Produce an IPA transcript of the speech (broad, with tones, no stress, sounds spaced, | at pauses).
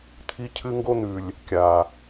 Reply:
t̪ʰ i˦ cʰ ɨ˦ ŋ ɡ o˦ n̪ ʉ˨ lʲ | kʲ a˨